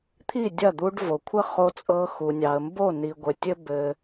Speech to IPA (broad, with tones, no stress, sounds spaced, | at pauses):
t̪ʰ i˦˨ dʲ ɐ˦˨ d̪ u˧ ɖ v o˨ kʷʰ ɘ˦ χ o˧ t͡sʼ ɤ˧ x u˨ nʲ ɑ˨ ə̯ m b o˦˨ n i˧ ɡʷ ɘ˧ tʲ ɘ˦ b ɘ˧